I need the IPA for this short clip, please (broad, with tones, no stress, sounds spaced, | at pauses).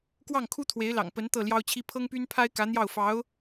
k w ɑ˥˩ ŋ kʰ u˥ t̪ʰ w e˧˥ ɪ̯ l ɑ̰˨˩ ŋ p ə˧˥ n t̪ ɤ˥˩ l j ɑ˥ ʊ̯ t͡ɕʰ i˥ pʰ ɤ˥ ŋ p y˥ n pʰ a˥ ɪ̯ k ä˧˥ n̪ j ɑ˥˩ ʊ̯ f ɑ˧˥ ʊ̯